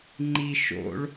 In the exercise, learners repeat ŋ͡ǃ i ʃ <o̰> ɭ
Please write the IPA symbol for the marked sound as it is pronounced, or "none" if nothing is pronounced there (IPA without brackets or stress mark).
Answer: o̰